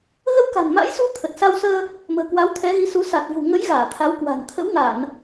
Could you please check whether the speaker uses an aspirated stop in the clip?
yes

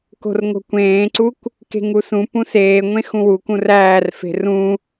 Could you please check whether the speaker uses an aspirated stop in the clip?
no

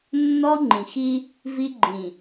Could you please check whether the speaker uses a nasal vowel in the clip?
yes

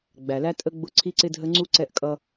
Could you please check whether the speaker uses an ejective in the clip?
yes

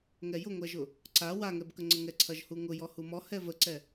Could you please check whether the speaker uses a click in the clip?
yes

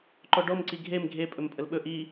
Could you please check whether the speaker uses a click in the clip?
yes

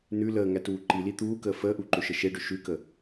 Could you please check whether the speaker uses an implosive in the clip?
no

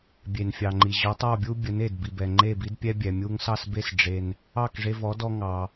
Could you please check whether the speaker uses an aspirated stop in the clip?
no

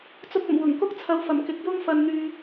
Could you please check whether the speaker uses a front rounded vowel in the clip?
yes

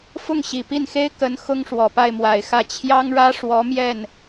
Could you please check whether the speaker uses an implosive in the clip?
no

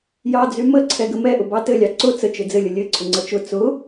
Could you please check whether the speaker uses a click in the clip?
yes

